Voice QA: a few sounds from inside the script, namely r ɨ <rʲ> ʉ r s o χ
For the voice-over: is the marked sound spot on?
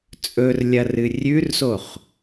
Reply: yes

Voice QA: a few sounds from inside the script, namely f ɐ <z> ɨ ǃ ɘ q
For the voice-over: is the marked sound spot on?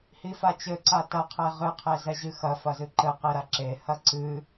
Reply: yes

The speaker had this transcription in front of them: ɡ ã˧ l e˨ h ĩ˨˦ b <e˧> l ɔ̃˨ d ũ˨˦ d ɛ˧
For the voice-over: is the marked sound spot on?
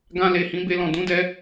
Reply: yes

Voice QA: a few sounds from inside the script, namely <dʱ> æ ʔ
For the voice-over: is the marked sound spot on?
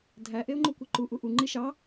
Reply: yes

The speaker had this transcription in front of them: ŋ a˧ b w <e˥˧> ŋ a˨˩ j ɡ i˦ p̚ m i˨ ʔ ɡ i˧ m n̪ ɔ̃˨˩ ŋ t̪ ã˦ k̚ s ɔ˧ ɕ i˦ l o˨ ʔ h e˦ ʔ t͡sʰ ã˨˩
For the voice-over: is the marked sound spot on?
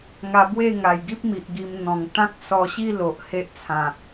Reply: yes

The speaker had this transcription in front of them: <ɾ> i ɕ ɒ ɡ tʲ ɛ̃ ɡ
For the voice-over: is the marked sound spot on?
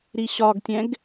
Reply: yes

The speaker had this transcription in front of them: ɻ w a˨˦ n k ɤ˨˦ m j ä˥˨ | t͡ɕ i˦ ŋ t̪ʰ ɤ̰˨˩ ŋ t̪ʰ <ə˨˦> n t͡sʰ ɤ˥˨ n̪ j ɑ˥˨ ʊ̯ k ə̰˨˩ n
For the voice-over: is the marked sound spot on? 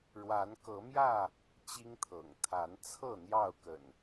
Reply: no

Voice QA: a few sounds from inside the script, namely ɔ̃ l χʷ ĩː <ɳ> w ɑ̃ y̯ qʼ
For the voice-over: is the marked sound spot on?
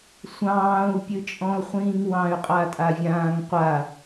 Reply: no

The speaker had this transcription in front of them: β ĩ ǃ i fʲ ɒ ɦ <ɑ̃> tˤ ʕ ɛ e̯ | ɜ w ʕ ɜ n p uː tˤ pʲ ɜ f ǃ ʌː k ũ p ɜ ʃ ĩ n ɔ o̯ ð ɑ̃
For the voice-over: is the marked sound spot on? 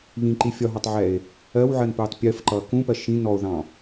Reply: no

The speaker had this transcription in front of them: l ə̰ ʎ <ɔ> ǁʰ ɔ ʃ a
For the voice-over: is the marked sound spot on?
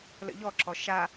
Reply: yes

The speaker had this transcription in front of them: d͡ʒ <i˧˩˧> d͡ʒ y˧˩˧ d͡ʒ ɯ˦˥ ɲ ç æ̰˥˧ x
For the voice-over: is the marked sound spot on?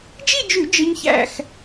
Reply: no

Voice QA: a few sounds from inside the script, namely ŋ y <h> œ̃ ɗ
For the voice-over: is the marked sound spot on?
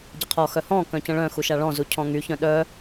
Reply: no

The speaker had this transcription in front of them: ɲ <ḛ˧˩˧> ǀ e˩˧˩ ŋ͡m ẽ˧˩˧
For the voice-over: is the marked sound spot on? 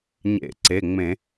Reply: yes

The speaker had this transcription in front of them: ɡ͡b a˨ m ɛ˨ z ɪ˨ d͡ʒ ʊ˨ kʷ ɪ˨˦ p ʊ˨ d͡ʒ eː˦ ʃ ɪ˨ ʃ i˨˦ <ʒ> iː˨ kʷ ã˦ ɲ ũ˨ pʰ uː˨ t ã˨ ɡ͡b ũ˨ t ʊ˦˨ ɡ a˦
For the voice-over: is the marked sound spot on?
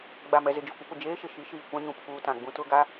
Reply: no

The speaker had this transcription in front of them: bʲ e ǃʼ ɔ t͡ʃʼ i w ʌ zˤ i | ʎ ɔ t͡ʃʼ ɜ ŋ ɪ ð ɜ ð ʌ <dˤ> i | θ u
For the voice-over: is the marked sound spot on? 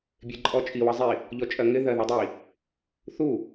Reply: yes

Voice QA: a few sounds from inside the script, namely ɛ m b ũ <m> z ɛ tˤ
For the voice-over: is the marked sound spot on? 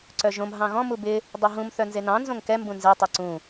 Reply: no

